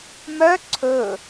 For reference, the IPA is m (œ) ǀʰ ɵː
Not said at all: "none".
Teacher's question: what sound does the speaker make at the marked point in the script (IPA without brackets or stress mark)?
œ